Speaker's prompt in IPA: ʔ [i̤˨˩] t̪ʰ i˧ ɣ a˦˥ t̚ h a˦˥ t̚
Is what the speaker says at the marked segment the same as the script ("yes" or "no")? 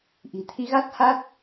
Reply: yes